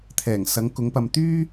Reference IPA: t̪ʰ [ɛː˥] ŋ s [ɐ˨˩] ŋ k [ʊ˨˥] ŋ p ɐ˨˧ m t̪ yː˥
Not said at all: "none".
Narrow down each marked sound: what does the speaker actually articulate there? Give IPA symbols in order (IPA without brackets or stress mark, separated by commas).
ɛː˨˩, ɐ˨˥, ʊ˨˥